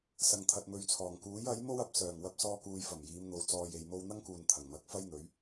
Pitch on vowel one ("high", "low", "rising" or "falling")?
low